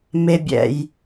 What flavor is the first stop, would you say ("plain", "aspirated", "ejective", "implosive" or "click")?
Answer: plain